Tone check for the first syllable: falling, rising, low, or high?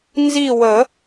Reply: falling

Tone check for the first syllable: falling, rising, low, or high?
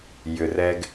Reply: low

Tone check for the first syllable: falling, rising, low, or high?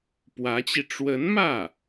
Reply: rising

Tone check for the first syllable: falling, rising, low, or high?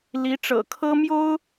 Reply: rising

